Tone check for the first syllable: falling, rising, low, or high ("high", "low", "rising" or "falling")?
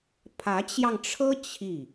rising